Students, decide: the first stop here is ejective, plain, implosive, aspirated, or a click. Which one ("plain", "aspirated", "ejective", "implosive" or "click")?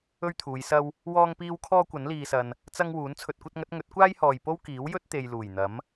aspirated